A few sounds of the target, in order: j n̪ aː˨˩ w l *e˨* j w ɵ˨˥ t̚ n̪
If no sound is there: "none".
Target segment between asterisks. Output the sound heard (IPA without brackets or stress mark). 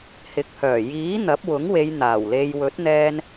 e˧